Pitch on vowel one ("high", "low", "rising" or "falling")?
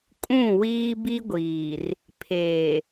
falling